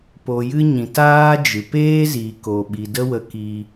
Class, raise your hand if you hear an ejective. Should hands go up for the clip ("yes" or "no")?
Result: no